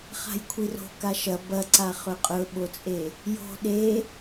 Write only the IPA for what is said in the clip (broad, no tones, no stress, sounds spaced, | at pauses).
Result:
χ a̤ j kʷʰ i r o̤ k a ʃ ɐ b ɐ ǀ a χ ɵ qʼ ɵ ɓ o t͡sʼ e | j o̤ ɗ e